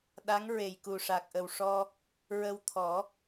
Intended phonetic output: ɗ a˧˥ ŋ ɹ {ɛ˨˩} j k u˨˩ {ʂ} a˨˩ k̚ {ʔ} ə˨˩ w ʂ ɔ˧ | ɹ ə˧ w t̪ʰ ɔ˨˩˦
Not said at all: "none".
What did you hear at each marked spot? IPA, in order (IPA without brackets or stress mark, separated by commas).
e˨˩, ʂ, ʔ